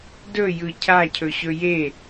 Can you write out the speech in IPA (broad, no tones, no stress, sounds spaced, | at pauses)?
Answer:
d ɵ j ɯ cʰ a cʰ ɵ ɕ ɵ j e